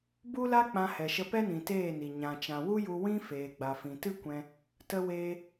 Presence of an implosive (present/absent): absent